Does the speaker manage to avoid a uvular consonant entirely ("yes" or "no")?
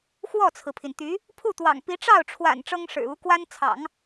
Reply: yes